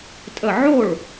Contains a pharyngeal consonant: yes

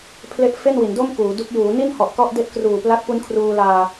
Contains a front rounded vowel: no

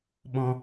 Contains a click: no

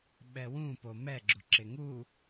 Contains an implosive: yes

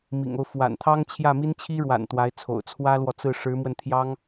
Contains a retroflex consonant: yes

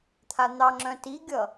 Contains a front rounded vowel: yes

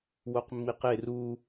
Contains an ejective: no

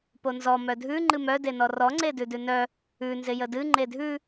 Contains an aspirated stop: no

